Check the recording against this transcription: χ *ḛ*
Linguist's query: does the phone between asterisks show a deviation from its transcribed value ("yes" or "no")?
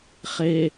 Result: yes